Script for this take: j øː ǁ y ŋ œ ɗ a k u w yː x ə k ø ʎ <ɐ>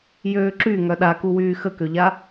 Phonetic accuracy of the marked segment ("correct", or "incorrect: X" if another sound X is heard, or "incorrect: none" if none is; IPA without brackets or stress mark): incorrect: a